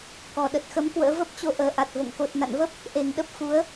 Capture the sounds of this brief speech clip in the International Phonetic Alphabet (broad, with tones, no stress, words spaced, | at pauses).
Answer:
kɔ˨˩ɗə˨˩t̚xə˨˦m kwə̰ː˧˥və˦˥p̚t͡ɕo˧ ʔəː˨˩ʔa˨˩t̚vo̰˧˨ŋ ko˨˩t̚na̰˧˨nvə˦˥p̚ | ʔe˨˩ŋɗə˦˥p̚ fu˨˦ə̯